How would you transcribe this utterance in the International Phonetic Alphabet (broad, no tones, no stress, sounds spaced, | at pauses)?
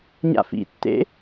ɲ a̰ f ḭ tː ḛ